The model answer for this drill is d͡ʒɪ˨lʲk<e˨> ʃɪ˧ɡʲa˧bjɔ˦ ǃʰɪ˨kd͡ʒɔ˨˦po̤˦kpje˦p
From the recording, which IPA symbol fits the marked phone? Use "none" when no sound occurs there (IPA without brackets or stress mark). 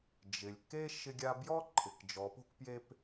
e˦